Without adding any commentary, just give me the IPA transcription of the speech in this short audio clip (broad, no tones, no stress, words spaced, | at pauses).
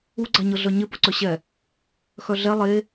uɡ͡ǀaɲɤ ɮœɲɪ pʊǀœɕɛ | xœɮɛ lˠe